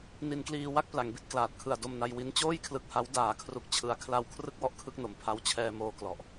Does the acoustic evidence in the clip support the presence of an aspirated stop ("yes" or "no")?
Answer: yes